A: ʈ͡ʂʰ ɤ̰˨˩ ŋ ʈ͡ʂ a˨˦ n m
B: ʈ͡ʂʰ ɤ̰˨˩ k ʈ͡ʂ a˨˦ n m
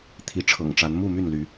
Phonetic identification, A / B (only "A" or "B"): A